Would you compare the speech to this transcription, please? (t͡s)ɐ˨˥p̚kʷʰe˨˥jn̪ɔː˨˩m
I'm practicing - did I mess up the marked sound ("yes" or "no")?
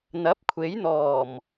yes